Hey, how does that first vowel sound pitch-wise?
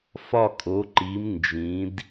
falling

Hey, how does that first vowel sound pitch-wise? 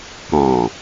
low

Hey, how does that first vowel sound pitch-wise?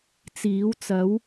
rising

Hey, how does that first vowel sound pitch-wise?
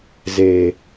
low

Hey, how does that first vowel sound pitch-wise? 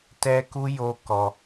high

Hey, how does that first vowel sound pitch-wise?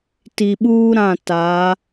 low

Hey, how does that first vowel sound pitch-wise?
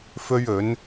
high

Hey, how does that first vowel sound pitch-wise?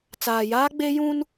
low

